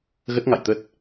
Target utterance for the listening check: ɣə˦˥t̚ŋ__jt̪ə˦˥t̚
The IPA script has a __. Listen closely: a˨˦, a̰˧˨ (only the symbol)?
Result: a̰˧˨